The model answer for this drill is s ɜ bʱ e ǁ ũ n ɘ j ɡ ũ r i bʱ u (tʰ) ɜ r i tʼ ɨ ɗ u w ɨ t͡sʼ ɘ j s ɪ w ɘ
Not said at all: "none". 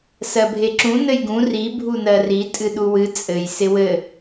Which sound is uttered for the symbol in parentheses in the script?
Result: n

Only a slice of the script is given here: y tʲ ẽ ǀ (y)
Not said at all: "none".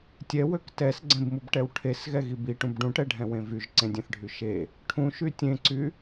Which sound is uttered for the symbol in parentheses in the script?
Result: y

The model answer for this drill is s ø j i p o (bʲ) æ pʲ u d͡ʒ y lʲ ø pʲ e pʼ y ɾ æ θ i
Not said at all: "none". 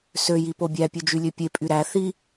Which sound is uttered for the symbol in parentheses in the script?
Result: bʲ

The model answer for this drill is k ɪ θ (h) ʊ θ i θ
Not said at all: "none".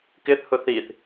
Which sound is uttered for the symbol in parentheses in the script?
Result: h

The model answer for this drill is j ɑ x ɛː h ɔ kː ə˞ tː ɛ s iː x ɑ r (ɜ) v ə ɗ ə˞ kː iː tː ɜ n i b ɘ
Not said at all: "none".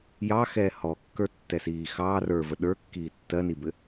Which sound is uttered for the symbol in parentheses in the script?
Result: ə˞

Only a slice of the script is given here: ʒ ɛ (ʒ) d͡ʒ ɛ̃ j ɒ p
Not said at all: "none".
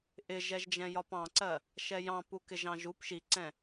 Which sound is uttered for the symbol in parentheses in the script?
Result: ʒ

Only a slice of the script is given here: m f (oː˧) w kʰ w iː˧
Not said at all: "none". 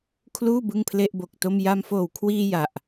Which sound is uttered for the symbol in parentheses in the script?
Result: oː˨˩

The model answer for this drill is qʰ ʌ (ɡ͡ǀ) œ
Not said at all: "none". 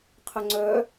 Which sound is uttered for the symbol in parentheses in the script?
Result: ŋ͡ǀ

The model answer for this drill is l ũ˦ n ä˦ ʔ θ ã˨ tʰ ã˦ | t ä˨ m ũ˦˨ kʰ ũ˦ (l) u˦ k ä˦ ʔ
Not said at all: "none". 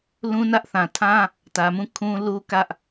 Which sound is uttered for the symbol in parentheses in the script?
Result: l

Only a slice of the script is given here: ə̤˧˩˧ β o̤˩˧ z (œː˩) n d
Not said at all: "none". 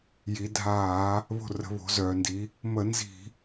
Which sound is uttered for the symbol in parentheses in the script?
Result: œː˩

